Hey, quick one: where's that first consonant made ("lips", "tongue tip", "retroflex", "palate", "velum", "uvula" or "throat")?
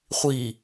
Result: uvula